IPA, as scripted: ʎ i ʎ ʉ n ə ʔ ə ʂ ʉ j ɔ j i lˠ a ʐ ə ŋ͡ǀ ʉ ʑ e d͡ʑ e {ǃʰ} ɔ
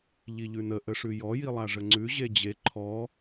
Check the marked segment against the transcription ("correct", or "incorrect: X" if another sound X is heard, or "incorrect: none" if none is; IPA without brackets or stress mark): correct